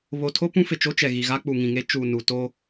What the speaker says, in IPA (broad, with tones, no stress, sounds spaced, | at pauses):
β o˨ tʰ o˦ p ũ˦ f ɪ˨ t͡ʃ o˦ t͡ʃ ɛ˨ ɣ i˨ ɣ a˦ k͡p u˨ ŋ ĩ˨ ŋ e˦ t͡ʃ uː˨ n u˨ t o˦